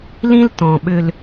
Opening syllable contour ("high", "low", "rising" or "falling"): high